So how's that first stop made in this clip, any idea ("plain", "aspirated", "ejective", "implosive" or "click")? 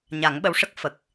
implosive